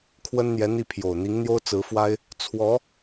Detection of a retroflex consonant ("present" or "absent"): absent